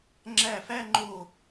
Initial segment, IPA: ŋ͡ǁ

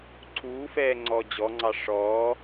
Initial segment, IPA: ǀʰ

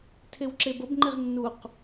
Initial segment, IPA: tʰ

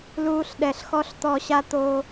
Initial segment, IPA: l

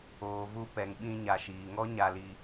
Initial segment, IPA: oː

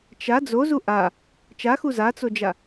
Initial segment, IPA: t͡ʃ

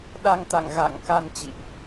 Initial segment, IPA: ɗ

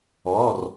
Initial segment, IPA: ɔː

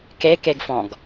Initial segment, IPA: k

